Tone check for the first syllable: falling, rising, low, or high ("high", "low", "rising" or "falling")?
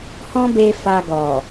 high